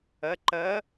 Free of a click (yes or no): no